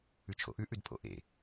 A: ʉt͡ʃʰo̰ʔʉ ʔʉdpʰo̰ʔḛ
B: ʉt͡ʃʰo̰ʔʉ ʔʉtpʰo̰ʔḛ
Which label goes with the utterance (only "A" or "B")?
A